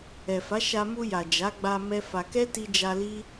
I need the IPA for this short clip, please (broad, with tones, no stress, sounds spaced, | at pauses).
ɛ˨ f a˨˦ ʃ a˧ m u˧ j a˨ d͡ʒ a˨˦ ɡ͡b a˧ m ɛ˦ f a˧ k ɛ˦ t i˧ d͡ʒ a˧ l i˦